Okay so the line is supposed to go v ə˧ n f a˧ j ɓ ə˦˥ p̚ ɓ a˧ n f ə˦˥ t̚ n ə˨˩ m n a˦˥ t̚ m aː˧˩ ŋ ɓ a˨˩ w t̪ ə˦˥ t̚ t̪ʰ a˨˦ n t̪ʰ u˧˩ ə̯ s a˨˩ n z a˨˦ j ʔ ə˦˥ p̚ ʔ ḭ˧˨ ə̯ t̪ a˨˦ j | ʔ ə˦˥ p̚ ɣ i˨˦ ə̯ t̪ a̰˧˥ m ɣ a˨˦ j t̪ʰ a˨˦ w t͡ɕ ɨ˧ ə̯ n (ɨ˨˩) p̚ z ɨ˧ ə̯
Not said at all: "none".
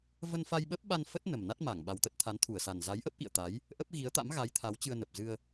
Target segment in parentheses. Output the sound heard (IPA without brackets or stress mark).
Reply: ə˨˩